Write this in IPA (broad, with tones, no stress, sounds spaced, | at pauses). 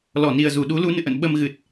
l ɔ˧˩ n i˨˩ ə̯ z u˧˩ ɗ u˨˦ l u˨˦ n ɨ̰˧˨ ʔ ə̰˧˨ n ɓ ə˧ m ɣ ɨ˨˩ t̚